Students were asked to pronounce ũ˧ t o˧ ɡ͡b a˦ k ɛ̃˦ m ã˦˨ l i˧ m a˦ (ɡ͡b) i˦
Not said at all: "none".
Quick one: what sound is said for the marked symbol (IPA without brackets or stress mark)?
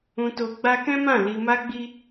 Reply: ɡ͡b